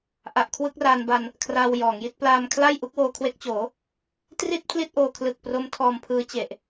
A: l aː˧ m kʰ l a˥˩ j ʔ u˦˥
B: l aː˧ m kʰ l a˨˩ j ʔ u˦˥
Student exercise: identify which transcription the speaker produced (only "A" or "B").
A